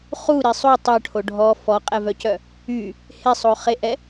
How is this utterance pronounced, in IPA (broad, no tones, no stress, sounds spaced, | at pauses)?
χ u ɾ i sˤ u tˤ œ ʈʰ o ɖʱ ɔ f ɔ qʼ ɛ v œ c œ | y | h e sˤ o χ e ʔ ɛ